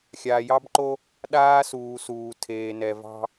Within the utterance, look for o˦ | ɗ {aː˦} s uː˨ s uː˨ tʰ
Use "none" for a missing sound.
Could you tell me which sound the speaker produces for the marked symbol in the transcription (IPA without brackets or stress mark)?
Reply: aː˦